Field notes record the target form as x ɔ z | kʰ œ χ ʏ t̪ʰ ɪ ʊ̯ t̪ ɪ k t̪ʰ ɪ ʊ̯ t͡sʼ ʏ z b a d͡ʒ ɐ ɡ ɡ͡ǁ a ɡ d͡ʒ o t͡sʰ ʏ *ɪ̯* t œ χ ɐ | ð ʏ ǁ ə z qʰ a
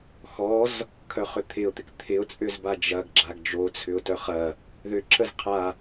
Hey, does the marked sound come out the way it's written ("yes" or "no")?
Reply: no